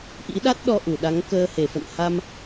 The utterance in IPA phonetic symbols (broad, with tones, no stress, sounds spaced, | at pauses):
ʔ ḭ˧˥ ɗ a˦˥ t̚ ɗ ɔ˧ ʔ u˧˩ ɗ a˨˦ ŋ k əː˧ h e˧˩ f ə̰˧˨ n h a˧ m